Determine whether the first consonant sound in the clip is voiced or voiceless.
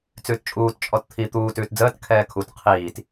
voiceless